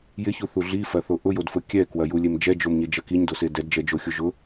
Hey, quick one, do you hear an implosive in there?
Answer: no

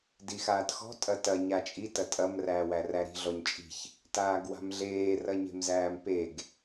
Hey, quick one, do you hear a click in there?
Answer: no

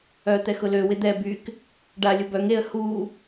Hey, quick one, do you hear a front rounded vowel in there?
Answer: yes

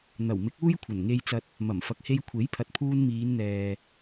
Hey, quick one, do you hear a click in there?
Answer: no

